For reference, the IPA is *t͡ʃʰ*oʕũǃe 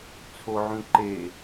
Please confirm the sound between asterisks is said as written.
no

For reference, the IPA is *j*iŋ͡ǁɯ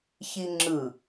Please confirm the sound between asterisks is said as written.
no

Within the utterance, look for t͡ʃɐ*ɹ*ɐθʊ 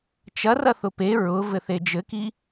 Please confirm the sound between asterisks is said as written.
no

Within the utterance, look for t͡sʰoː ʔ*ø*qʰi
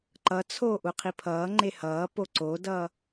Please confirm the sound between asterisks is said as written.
no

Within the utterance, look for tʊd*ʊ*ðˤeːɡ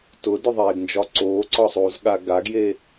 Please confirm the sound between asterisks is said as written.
yes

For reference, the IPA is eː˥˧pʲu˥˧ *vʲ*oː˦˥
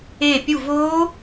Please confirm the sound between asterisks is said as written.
no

